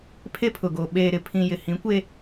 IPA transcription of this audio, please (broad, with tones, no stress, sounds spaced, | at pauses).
pʰ e˦ pʰ ʊ˨ ɡ o˨ ɓ eː˨ ɾ ɪ˨ pʰ ĩ˨ j ɪ˨ h ĩ˨˦ kʷ e˦